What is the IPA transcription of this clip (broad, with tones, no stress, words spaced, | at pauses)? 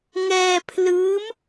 ŋɛː˧pʰlɯː˦˥m